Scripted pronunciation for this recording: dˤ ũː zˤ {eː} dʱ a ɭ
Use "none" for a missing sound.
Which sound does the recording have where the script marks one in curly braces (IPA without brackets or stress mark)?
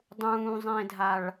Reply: ẽː